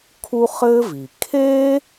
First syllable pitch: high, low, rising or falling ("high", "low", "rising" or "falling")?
high